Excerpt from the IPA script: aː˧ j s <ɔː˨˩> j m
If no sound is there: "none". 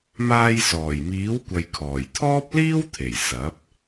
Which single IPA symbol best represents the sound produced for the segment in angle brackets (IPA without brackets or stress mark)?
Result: ɔː˨˩